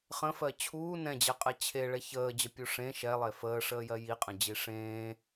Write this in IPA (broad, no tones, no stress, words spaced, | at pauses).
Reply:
χə̃fɜ t͡ɕʰuː nɛ̃d͡ʑɛqʼɛ t͡ɕʰeɭɛ çəːd͡ʑəpʲu ʂẽ ʃɛlˠe fəːʂəːjɜ jiqʼə̃d͡ʑi ʂẽː